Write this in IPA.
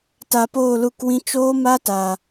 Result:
ta˧poː˦˨lu˦˨kwĩ˦ t͡ʃoː˦ma˦ta˨

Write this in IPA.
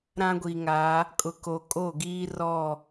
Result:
ɾã˦ɡʷi˨ŋa˨˦ | kʼʊ˨ko˨kʼo˦˨ ɡiː˦rɔ˦˨

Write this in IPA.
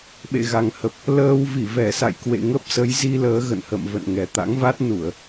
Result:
ɓḛ˧˨ɣa˨˩ŋhə˨˩p̚ | ləː˧w vi˧˩vɛ˧˩sa̰˧˨jkwḛ˧˨ ŋə˦˥p̚sə˨˦jzi˧ləː˨˦ ɣə̰˧˨nhə̰˧˨m və̰˧˨nŋɛ˨˩ t̪a̰˧˥ŋva˦˥t̚nu˧˩˨ə̯

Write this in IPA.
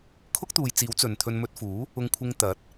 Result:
kʰʊ˥k̚t̪uː˨jt͡siː˨˥w t͡sɵ˨nt̪ʰɵ˧n mɵ˧t̚fuː˨˥ | ʊ˧ŋkʷʰɪ˧ŋ t̪ɐ˨˥t̚

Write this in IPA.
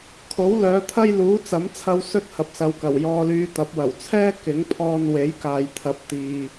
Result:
kʰo˨˥wlœː˨˧t̪ʰɐ˥j luː˨˥t͡sɐ˨˥mt͡sʰɐ˧w sɵ˥t̚hɐ˨p̚sɐ˨wkɐ˨˩w jɔː˧lyː˧t̪ɐ˨˥p̚ wɐ˨˩wt͡sʰɛː˥ kɪ˨˥ŋpʰɔː˧n we˨˥jkaː˨jt̪ʰɐ˨˥p̚ t̪iː˨

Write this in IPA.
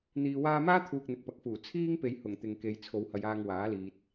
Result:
n̪iː˧waː˥ maː˥t̪ʰuː˨k̚ n̪ɪ˨k̚pɐ˨k̚fuː˨˩ t͡sʰiː˥ŋpe˨j hʊ˨˩ŋ t̪ɪ˨ŋke˨˧j t͡sʰo˨˧whɐ˨˧jaː˧ŋ waː˨˥liː˨t̚

